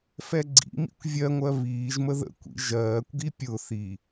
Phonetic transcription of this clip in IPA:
f ɛ ɡ͡ǀ ḭ m ḭ kʷ vʲ ɜ ŋʷ ɜ β iː ʒ m ə ð ə̰ kʷ ḭ ʒ ɜː kʷ ɡ i pʲ ʊ θ i

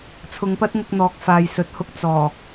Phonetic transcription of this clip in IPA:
t͡sʰ ʊ˨˧ ŋ p ɐ˥ t̚ ŋ ʊ˧ k̚ n̪ ɔː˨ k̚ f aː˨ j s ɵ˨ t̚ h ʊ˧ k̚ t͡s ɔː˨˩

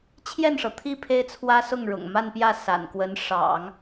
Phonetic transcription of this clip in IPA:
t͡ɕʰ j ɛ˥˩ n ʂ ɤ˩ t̪ʰ i˥˩ pʰ e˥ ɪ̯ t͡sʰ w ä˥ s ʊ˥˩ ŋ ɻ ʊ̰˨˩ ŋ m a˥˧ n p j ä˥˩ s a̰˨˩ n k w ə˧˥ n ʂ ɑ̰˨˩˦ ŋ

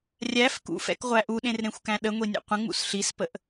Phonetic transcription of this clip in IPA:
rʲ æ f k ṵ f ɛ̰ k ʁʷ æ ʔ u ɗ ẽ r ɾ ẽ xʷ k æ̃ ɗ ə ŋʷ i nʲ ḛ qʷ ə̃ ŋ͡m ṵ s ɬ i s p ə ʔ

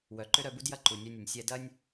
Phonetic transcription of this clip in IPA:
w œ˨ ǃ ʏ˦ ɾ œ˧ b u˦ d j ɐ˦ ǃ u˨ nʲ œ˧ nʲ ʊ˨ nʲ sʲ ɛ˧ d ɐ˦ nʲ

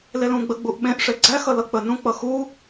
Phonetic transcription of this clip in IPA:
l e l ũ ɡ͡b ə ɡ͡b u ʔ ɓ ẽ ʔ ʂ e ɡ͡ǀ æ x ʌ l ʌ k͡p ə n ũ k͡p ʌ x u

